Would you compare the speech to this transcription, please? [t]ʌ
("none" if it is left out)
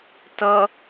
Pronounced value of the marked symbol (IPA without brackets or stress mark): t